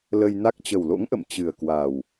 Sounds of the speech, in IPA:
l ə˧ j n a˦˥ k̚ t͡ɕ ə˨˩ w l o̰˧˥ ŋ ʔ ə̰˧˨ m t͡ɕ ɨ˨˩ ə̯ k w a˨˩ w

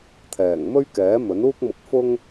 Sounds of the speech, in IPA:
t̪ʰ ɛː˨˩ ŋ m ɵ˥ ɥ k ɛː˨˥ m ɵ˨˥ n uː˥ k̚ m ʊ˧ k̚ f ʊ˥ ŋ

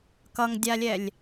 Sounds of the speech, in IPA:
k ʌ ŋ dʲ a lʲ ɛ lʲ

